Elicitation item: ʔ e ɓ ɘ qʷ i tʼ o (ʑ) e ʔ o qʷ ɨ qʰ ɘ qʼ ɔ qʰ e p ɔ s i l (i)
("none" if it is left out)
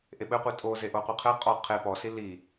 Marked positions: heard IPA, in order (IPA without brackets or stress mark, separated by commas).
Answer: z, i